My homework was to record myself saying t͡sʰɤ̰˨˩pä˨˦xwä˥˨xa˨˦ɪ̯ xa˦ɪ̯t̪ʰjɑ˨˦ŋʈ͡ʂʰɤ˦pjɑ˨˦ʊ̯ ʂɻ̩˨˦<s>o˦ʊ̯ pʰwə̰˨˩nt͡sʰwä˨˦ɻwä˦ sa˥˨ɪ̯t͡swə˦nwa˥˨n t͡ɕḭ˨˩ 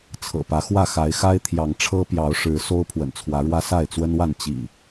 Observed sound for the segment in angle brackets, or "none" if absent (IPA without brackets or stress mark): s